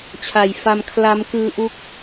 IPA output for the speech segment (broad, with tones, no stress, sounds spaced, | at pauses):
t͡ɕʰ a˨˩ j f a˧ m kʰ l a˦˥ m k ɯː˦˥ ʔ u˦˥ k̚